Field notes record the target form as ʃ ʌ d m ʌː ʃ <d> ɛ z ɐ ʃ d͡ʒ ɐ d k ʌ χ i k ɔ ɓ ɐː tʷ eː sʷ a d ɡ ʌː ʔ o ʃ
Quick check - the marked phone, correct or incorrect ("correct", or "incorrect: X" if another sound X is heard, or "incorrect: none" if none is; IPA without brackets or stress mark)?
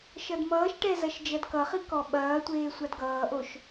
incorrect: ʈ